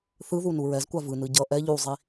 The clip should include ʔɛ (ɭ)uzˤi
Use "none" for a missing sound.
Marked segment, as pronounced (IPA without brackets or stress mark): ʎ